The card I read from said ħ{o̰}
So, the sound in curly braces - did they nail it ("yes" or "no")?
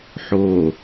no